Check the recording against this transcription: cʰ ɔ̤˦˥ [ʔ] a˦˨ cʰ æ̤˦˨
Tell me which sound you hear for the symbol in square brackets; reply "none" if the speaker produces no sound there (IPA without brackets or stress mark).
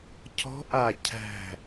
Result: ʔ